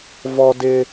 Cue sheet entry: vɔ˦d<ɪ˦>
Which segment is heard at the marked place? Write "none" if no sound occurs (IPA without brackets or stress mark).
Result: ɪ˦